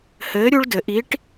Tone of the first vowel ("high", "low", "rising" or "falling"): rising